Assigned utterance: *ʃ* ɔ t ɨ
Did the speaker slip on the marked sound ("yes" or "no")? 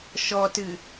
no